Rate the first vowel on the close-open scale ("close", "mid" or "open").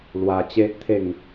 open